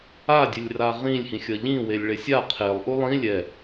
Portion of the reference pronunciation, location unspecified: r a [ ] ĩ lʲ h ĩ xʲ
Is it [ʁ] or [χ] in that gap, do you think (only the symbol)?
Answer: ʁ